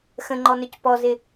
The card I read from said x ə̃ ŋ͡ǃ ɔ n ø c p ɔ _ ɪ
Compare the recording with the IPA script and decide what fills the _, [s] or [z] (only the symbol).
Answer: z